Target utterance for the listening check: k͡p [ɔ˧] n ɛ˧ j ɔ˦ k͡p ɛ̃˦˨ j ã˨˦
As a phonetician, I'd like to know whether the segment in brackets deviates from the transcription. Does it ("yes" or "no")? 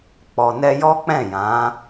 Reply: yes